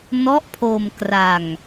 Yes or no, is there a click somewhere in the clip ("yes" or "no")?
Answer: no